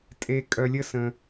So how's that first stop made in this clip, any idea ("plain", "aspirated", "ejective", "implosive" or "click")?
ejective